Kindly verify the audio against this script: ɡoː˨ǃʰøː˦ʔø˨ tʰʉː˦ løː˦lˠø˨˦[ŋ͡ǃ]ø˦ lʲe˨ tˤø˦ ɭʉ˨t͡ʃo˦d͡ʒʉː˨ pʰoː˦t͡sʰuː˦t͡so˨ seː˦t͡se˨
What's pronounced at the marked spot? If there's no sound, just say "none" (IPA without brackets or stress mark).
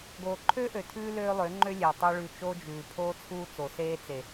ŋ͡ǃ